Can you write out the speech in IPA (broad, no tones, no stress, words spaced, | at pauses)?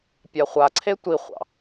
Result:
pʲaχʷaǀʰe tʷiχʷɑ̰